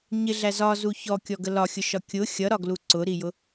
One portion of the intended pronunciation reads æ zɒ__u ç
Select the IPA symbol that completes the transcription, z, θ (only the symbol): z